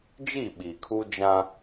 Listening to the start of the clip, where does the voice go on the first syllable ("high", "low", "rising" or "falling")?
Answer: falling